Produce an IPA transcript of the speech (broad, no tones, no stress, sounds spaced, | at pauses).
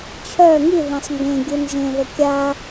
t͡ɕʰ œ ŋ i ð ẽ sˤ ŋ ɡ ẽ ɡʲ u n ʒ ẽ ð ə kʲ a